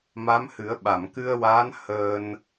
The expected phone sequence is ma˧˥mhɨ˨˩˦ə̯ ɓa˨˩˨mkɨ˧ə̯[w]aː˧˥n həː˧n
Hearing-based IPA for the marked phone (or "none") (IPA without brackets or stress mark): w